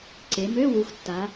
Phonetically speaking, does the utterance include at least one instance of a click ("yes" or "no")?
yes